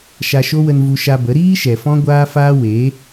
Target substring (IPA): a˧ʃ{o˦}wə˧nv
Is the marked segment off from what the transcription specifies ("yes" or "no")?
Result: no